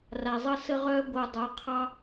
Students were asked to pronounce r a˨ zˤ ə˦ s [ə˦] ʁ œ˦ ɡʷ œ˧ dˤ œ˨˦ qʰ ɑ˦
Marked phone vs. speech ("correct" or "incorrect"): correct